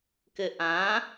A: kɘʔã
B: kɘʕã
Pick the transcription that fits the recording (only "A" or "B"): A